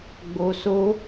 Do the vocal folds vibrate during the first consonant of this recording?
yes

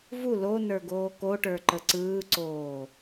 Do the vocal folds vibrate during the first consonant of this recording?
yes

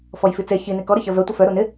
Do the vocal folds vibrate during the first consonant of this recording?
no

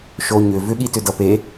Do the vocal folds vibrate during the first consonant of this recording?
no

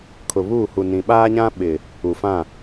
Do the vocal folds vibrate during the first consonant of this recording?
no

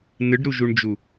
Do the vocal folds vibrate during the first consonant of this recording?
yes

